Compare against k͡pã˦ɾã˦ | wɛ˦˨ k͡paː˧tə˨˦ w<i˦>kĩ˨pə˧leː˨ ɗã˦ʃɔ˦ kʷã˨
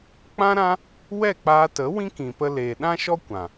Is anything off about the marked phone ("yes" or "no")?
yes